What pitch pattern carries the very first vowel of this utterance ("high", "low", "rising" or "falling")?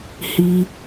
high